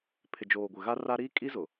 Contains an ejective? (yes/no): yes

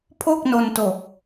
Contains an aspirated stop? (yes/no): yes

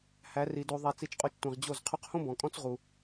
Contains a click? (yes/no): no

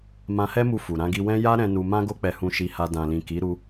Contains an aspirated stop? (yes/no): no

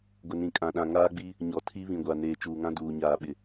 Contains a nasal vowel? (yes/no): yes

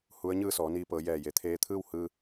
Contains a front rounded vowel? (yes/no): no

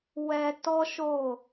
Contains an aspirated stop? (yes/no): no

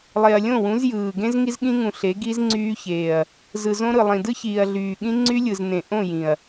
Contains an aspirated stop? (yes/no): no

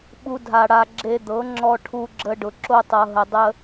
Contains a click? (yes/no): yes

